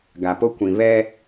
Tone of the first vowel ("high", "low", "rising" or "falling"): low